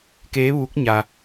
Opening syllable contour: rising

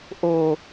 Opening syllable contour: low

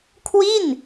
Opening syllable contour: falling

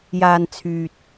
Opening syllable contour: low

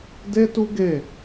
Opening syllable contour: high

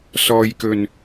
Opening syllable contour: low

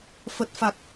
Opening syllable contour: low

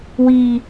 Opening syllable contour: low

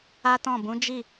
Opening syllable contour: high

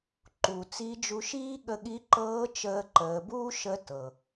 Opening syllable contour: low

